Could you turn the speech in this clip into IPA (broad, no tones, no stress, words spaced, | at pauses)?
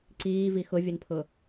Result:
ǀiːvi xʊvʲənpʰʊ